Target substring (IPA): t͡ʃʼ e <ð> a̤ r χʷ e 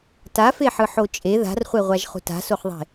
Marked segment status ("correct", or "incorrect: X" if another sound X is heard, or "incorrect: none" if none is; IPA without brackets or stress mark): correct